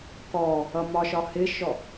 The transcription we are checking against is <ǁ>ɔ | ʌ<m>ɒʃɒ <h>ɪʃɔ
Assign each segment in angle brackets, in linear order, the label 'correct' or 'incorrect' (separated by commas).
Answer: incorrect, correct, correct